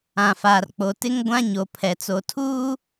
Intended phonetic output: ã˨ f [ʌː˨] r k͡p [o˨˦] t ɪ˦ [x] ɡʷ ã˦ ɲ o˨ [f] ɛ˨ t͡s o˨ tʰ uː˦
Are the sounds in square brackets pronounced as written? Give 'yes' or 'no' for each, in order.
no, no, no, no

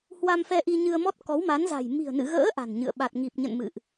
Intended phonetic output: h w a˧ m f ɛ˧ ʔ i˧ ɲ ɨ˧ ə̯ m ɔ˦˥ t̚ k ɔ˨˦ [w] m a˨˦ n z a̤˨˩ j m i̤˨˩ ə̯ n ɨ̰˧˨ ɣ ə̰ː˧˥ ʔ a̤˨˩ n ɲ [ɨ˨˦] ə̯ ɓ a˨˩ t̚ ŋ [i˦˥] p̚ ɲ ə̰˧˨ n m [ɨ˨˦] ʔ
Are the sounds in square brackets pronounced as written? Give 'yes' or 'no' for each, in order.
yes, no, no, no

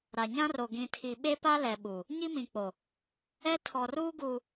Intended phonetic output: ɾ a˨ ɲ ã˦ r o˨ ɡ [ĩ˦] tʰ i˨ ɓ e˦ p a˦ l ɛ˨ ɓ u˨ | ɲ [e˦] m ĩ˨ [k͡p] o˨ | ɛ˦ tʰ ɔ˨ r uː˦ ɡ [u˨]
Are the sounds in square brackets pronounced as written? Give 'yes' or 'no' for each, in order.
no, no, yes, yes

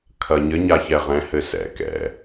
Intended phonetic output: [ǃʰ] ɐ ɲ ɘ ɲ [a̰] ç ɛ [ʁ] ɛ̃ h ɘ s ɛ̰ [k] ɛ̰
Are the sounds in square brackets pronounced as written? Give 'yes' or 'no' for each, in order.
no, no, yes, yes

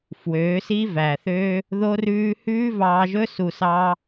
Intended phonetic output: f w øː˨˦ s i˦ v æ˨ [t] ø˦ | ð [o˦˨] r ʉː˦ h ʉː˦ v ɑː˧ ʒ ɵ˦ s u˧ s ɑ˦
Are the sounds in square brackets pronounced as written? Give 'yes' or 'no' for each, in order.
no, no

